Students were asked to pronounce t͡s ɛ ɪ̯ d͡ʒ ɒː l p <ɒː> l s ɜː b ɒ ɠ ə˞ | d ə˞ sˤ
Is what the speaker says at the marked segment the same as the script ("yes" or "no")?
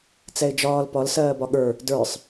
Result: no